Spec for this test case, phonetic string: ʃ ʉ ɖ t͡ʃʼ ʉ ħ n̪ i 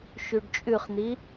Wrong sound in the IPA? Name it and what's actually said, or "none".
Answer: ħ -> χ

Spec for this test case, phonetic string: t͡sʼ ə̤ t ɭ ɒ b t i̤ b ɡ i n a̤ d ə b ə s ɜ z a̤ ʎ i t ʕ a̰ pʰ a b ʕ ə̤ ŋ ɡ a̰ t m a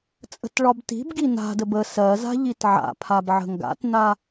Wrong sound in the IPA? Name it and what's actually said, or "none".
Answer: m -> n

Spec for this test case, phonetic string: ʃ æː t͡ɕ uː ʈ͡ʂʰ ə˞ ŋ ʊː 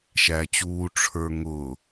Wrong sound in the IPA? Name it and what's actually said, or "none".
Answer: none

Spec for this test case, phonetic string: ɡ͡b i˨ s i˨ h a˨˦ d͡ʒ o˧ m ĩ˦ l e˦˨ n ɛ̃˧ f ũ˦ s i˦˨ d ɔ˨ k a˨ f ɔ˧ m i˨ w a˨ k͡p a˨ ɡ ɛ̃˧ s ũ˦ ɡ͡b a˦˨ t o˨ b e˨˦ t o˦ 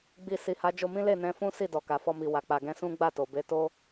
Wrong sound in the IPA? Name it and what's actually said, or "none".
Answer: none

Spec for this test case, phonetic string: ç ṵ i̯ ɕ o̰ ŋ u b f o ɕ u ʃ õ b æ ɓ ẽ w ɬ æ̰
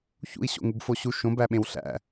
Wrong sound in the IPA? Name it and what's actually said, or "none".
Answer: none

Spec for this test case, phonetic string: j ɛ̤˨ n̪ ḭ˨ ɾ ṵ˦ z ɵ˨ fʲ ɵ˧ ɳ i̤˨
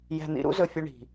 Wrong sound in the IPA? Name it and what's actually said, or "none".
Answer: none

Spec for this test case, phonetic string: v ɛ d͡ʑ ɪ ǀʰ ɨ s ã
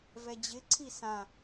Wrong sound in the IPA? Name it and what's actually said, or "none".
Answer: ɨ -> i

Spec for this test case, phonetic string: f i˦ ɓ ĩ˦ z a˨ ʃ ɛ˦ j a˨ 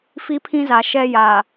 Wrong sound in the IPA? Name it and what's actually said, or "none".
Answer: ɓ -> pʰ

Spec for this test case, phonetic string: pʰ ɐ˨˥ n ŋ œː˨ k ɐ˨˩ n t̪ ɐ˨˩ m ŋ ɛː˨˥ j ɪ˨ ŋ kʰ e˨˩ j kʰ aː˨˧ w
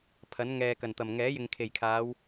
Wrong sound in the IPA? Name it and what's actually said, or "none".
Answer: œː˨ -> ɛː˨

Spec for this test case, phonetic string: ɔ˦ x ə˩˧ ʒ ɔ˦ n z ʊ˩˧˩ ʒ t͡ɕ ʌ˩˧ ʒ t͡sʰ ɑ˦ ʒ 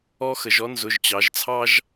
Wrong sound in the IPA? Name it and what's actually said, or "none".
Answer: ʌ˩˧ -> ɑ˩˧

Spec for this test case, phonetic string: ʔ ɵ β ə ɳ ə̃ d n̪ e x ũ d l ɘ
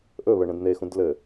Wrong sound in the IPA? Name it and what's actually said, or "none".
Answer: none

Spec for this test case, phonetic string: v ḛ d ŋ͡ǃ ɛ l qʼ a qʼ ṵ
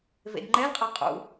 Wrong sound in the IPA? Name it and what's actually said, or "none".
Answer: none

